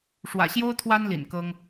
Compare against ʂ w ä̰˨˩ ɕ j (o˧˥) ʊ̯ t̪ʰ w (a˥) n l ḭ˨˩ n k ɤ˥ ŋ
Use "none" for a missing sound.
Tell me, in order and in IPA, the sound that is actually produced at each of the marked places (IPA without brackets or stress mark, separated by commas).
o˥, a˥